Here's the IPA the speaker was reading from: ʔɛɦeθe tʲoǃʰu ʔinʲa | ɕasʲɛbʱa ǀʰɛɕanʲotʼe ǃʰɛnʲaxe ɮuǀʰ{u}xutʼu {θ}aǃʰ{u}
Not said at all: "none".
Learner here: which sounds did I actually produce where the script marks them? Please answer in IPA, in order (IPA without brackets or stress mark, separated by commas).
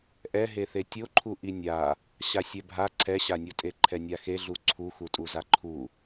u, z, u